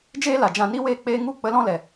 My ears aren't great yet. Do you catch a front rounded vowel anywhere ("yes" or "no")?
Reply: no